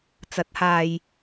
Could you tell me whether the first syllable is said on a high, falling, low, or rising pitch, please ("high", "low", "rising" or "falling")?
rising